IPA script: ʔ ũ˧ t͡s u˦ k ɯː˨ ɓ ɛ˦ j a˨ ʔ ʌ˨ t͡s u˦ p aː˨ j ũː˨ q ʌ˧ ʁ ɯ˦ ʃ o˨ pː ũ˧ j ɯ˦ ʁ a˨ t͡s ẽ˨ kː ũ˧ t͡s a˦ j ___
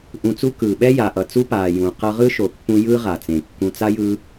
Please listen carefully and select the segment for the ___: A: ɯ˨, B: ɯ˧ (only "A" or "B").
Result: B